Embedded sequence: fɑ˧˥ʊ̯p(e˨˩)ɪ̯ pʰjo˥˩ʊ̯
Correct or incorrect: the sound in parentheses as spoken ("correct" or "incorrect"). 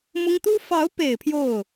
correct